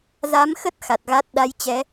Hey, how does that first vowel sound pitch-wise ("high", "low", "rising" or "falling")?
rising